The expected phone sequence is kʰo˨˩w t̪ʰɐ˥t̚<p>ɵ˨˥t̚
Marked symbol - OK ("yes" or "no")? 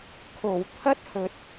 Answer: no